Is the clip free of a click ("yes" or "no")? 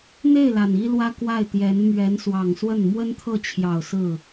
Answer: yes